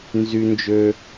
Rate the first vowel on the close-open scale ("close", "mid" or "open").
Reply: close